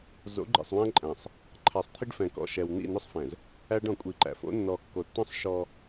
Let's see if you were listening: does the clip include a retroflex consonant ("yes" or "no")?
yes